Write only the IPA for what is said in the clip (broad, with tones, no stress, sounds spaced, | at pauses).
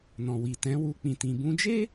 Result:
n ɔ̃˨ w i˨ t ɛ̃˨˦ w u˧ k͡p ĩ˧ t ĩ˧ b ũ˧ d͡ʒ e˦